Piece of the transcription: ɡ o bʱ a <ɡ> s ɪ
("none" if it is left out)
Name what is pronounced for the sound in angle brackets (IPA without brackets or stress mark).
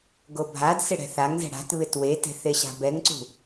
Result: d